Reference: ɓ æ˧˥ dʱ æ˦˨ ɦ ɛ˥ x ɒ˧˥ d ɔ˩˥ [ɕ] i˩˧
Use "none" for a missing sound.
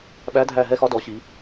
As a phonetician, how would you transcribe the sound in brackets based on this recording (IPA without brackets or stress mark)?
ɕ